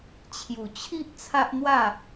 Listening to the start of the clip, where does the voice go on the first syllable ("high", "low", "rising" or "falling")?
low